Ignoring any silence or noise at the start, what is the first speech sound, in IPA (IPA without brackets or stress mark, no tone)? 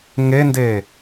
ŋ